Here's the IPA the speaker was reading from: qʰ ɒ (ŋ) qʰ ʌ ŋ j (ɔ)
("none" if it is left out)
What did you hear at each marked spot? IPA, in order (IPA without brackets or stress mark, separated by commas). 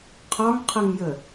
ŋ, ə